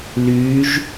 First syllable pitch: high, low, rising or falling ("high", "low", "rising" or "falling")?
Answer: rising